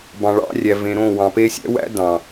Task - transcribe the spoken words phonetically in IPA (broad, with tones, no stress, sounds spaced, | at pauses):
b ɑ̃˨ ɭ ɑ̰˧ rʲ æ˨ v ẽ˨ ɾ õ˦˨ w ɑ̃˨ p e˧ sʲ æ̰˦ w æ̰˦ d ɑ̃˨